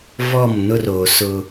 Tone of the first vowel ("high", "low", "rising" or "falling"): falling